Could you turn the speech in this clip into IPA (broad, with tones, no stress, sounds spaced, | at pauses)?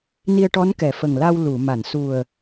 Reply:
n i˧ ə̯ ʈ ɔ˧˥ n k ɛ˨˩˦ f ə˨˩ ŋ l a˧ w l u˨˩˨ m a˨˩˨ n s u˨˩ ə̯